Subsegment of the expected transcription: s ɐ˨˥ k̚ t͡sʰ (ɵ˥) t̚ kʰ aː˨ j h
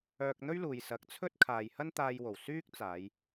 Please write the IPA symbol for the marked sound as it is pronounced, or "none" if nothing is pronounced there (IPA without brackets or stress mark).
ɵ˥